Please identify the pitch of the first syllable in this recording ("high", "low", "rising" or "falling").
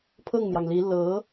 falling